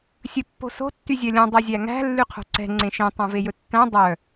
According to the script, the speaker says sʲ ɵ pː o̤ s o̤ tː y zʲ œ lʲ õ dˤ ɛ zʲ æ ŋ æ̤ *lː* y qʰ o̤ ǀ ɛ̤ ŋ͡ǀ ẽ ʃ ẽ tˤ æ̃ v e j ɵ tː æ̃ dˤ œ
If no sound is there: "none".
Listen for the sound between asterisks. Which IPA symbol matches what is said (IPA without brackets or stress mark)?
lː